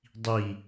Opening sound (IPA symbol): dˤ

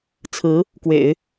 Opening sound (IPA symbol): t͡sʰ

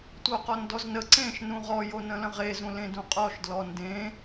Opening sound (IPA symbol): tʷ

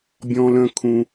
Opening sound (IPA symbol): bʲ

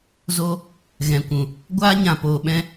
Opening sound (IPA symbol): z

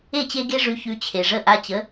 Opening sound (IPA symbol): e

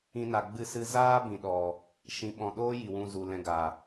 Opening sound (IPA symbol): ĩ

